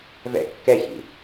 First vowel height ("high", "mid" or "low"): mid